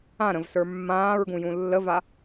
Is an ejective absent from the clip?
yes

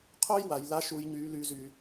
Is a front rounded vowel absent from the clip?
no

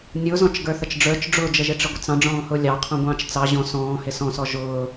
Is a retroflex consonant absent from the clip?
no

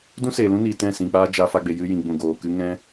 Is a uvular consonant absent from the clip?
yes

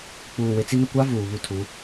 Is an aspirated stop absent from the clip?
no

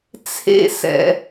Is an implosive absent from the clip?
yes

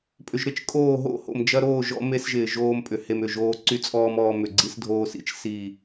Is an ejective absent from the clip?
no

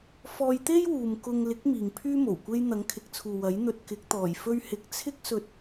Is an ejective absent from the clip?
yes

